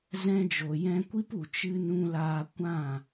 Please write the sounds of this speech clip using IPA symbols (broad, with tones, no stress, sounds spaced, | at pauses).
z ɛ̃˧ d͡ʒ o˨ j ɛ̃˧ kʷ i˦ p u˨ t͡ʃ ɨ˧ n ũ˧ l aː˧ kʷ ã˦˨